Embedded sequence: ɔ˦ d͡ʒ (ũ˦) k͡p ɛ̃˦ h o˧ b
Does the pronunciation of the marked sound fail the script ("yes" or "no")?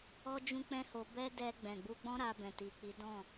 no